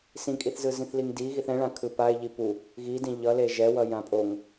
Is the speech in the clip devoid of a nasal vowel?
no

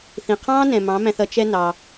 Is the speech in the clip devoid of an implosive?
yes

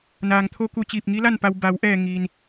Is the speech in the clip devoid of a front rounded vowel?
yes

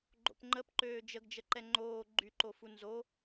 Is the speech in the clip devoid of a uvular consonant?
yes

